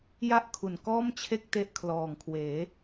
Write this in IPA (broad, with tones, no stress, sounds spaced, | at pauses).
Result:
j a˥˩ ʔ kʰ u˨˩ n k ɔː˥˩ m t͡ɕʰ e˥˩ k̚ t e˦˥ ʔ kʰ l ɔː˨˩ ŋ kʰ w eː˩˦